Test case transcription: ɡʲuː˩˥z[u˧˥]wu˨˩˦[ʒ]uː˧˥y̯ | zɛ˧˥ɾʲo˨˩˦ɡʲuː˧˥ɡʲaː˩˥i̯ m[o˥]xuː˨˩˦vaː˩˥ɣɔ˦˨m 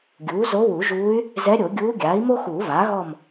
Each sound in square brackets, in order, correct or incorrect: incorrect, correct, correct

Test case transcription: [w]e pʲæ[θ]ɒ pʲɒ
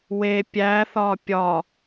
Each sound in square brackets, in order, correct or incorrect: correct, correct

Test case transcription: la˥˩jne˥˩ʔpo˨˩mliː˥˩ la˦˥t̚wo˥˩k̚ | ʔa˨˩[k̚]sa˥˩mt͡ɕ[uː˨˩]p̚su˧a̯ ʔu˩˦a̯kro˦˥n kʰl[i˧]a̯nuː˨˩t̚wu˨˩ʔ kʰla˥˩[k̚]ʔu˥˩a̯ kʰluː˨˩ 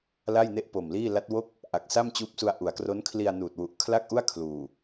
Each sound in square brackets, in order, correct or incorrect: correct, incorrect, correct, correct

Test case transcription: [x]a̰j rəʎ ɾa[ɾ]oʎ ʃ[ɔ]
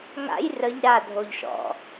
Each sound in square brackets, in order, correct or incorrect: incorrect, incorrect, incorrect

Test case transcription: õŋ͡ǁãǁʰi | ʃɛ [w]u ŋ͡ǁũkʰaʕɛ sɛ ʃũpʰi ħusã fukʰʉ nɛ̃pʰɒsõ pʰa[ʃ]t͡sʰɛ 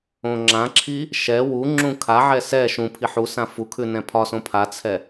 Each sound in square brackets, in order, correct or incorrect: correct, incorrect

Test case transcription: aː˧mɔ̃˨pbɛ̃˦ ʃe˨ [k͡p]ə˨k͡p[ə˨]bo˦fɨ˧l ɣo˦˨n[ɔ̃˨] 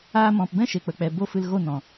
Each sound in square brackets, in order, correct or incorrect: correct, incorrect, correct

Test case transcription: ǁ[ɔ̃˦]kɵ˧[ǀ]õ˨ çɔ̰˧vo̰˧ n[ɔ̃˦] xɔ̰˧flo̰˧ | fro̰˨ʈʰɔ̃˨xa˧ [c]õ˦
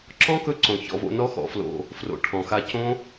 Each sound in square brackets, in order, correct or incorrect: correct, correct, incorrect, correct

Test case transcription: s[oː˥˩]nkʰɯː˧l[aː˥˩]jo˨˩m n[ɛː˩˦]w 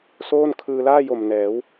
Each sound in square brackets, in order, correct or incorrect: correct, correct, correct

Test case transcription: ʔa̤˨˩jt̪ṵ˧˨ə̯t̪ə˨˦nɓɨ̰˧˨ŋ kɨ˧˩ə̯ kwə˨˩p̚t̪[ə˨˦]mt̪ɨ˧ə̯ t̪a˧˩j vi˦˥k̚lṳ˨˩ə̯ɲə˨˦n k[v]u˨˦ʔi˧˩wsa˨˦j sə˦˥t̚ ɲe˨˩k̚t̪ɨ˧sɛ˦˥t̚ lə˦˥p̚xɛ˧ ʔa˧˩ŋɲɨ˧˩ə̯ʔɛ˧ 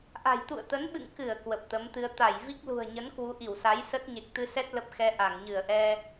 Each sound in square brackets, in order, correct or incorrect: correct, incorrect

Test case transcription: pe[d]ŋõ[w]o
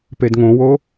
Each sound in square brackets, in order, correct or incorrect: correct, correct

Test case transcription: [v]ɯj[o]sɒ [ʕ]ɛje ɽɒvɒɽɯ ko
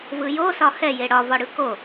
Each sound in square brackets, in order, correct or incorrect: correct, correct, incorrect

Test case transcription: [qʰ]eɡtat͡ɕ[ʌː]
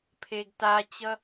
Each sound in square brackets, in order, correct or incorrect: incorrect, incorrect

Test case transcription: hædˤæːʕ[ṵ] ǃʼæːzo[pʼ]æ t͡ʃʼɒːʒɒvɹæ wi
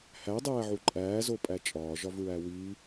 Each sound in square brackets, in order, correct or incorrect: incorrect, correct

